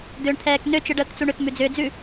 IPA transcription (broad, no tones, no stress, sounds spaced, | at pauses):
d̪ ʏː ɳ t̪ʰ ɛː k n ø t͡ʃ ɯ ɖ əː k t͡s u ɳ ʏ k m ʉ d͡z ʏː d͡z ʉ